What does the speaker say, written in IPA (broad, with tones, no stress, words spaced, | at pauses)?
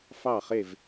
fɑ˥˩χe˥˩v